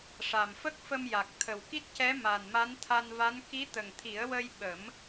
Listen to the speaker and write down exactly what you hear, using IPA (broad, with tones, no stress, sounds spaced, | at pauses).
ʂ a˨˩ m f ə˦˥ k̚ f ə˧ m j a˨˩ k̚ t̪ʰ ə˨˩ w k i˦˥ t̚ c ɛ˧˥ m a˨˩ n m a˧˥ n t̪ʰ a˧ n v a˧˥ n k i˧˥ t̪ ə˨˩ ŋ t̪ʰ i˨˩˦ ə̯ w ə˧ j ɓ ə˨˩˦ m